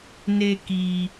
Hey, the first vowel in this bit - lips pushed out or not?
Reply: no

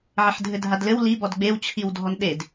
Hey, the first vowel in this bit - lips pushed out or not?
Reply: no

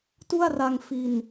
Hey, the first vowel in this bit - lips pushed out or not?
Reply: yes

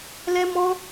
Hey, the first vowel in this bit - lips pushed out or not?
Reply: no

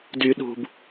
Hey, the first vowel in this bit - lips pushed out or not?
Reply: yes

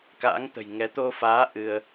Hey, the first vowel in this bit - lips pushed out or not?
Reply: no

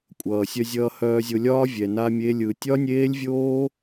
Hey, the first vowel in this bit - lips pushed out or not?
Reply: no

